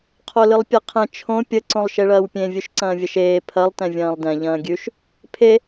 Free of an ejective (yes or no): yes